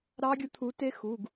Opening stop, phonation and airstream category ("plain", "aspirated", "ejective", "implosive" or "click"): plain